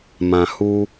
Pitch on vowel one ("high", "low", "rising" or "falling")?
low